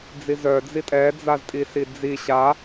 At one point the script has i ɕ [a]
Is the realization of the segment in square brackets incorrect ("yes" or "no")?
no